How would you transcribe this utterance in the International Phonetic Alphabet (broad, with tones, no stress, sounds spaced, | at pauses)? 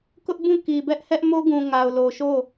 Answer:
k ʊ˦ ʔ b ũ˦˨ k i˨ b ɛ˦ ʔ h ɛ˦ ʔ m o˦ ɡ ũ˨ ŋ a˨ ʊ̯ l o˨ ʃ o˦˨